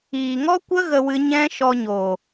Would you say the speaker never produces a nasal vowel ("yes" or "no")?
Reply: no